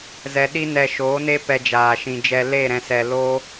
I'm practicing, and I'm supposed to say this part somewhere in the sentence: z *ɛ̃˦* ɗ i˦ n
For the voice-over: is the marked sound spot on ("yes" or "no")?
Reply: no